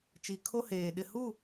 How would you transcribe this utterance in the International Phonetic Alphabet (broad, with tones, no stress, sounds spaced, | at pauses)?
t͡ʃ i˨ kʰ o˦ h eː˨ ɗ ɪ˨ h u˦˨